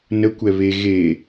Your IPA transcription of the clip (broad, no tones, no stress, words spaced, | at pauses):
nə kʷɛβe ɣe